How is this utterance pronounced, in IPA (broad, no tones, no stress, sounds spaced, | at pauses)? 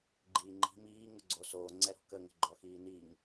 ɡ͡ǃ iː ŋ͡ǃ i̤ m iː ŋ ʊ ɡ͡ǀ o s oː ŋ͡ǀ ɛ ɾ ɔ̤ k ə ŋ ə̤ ɡ͡ǃ ɔ x iː n i ŋ